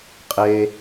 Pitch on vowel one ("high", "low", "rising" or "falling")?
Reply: low